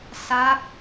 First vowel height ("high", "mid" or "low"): low